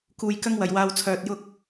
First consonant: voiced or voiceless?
voiceless